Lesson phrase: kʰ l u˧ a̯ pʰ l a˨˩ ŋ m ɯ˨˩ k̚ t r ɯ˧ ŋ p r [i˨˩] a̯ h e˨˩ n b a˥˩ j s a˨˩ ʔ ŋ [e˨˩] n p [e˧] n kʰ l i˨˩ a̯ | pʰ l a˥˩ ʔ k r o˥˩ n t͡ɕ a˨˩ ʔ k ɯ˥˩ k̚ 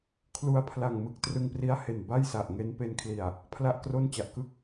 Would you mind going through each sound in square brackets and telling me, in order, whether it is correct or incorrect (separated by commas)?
incorrect, incorrect, correct